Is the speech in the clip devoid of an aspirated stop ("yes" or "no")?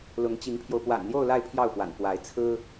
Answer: no